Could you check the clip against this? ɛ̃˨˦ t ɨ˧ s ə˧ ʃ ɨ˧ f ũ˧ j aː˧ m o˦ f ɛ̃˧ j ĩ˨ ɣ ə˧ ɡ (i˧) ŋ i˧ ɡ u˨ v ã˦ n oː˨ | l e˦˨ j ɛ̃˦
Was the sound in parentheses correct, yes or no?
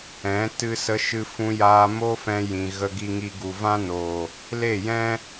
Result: yes